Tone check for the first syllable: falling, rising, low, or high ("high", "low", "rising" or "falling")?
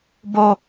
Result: high